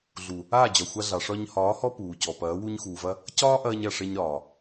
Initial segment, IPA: ɮ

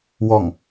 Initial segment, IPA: w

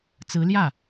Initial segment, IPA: t͡s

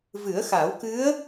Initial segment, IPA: v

